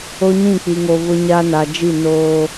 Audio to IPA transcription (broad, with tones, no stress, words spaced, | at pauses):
o˦ɲĩ˦˨k͡pi˨ŋo˨ βʊ˦ɲa˦ na˨d͡ʒi˦˨ noː˦